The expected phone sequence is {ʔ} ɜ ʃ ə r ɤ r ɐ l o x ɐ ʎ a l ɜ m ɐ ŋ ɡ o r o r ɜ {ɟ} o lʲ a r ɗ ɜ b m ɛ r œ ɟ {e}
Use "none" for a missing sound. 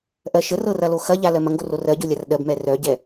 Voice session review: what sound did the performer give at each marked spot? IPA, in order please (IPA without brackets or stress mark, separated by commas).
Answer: ʔ, ɟ, ɛ